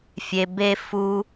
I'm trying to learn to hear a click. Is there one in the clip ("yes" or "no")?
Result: no